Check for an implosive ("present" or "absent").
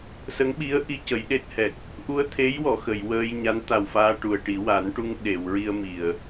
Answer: present